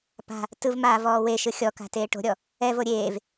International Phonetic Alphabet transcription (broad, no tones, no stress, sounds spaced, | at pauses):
p a̤ | t ɯ v m aː v ɔː w e ʃ ɯ xʲ ɔ k a̤ t eː ʈ o̤ ɾʲ ɔ | ɛ v o ɾʲ eː v